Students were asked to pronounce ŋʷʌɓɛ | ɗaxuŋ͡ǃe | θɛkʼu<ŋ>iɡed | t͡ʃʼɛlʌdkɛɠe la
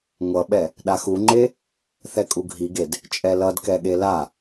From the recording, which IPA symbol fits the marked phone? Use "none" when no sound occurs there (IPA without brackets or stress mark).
ɡʱ